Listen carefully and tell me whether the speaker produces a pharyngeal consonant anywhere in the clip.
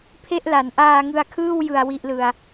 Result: no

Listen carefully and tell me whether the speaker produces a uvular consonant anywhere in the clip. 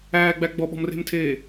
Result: no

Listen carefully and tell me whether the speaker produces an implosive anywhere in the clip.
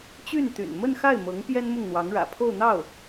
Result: no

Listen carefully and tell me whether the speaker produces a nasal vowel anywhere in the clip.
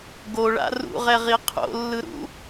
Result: no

